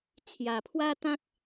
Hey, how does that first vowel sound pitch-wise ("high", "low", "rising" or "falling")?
low